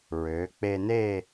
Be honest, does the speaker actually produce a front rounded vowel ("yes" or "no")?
yes